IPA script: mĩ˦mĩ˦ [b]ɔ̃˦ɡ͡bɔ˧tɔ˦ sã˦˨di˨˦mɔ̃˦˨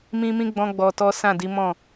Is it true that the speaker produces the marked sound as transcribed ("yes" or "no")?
no